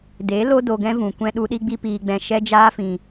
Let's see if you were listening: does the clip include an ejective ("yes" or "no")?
no